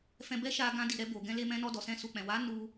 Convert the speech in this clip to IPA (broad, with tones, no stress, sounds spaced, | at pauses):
f ɛ̃˧ b ɛ˦ ʃ a˧ ɡ ã˧ d i˨ ɾ ɛ˧ b o˨ ɡ ɛ̃˧ l e˧ m ɛ̃˧ n ɔ˧ d ɔ˨ s ɛ̃˧ s u˨ k͡p ɛ̃˨ w a˨˦ n u˧